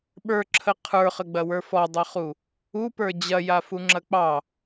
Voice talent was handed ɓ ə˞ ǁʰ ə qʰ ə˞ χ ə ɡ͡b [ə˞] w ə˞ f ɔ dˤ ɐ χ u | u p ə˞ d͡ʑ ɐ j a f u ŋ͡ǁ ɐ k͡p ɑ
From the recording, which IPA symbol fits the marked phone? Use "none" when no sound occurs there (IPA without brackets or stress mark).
ɐ